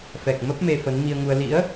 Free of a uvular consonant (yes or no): yes